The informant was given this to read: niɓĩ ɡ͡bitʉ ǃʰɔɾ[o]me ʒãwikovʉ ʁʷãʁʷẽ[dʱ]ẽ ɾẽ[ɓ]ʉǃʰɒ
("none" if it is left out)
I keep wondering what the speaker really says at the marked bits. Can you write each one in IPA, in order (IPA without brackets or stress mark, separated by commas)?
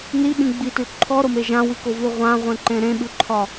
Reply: o, ǃ, ɓ